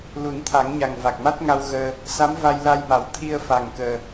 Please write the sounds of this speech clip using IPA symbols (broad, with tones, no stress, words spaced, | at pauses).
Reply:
lu˨˩˦nt̪ʰa˨˩˦ŋɲa˨˩ŋ va˨˩k̚ma˦˥t̚ŋa˧w ɣəː˧ | sa˧˥mva˧jla˧jma˨˩˦w t̪ʰi˧ə̯fa˨˩ŋkəː˨˩